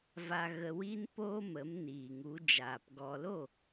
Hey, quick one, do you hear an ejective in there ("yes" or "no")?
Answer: no